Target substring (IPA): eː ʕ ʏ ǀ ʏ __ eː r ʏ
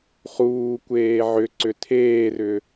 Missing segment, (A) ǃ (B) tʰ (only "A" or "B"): B